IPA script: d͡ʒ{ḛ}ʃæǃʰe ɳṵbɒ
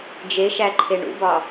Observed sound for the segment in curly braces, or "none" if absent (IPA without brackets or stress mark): e